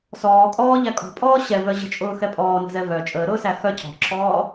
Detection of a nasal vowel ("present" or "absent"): absent